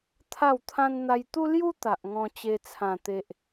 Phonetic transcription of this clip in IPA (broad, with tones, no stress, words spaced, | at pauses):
t̪ʰa˥˧wt̪ʰã˦n n̪a˧jt̪u˦lju˦ t̪a˨ʔ ŋɔ̃˧t͡ɕe˧t͡sʰã˨˩ t̪e˨ʔ